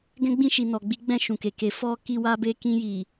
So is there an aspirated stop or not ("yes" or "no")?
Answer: no